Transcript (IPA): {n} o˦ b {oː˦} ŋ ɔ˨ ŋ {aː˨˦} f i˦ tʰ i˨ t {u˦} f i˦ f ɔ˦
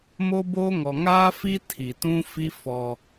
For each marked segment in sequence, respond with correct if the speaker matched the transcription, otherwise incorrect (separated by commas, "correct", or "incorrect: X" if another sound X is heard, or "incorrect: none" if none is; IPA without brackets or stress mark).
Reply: incorrect: m, correct, incorrect: aː˦, incorrect: ũ˦